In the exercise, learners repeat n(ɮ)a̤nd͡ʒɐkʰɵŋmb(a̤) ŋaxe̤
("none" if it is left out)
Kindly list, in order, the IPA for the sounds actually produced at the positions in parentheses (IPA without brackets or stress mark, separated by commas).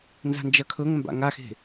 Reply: z, a̰